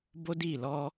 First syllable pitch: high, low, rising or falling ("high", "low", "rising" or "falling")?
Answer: high